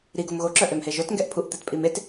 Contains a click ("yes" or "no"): yes